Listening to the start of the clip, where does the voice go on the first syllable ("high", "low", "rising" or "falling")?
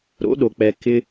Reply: rising